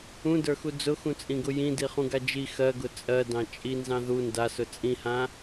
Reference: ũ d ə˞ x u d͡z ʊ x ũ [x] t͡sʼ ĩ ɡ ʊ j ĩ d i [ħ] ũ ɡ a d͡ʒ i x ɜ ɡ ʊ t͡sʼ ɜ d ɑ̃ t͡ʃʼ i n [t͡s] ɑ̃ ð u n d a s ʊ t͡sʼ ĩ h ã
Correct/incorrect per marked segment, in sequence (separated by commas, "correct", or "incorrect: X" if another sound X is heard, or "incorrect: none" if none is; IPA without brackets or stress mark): incorrect: none, incorrect: χ, incorrect: z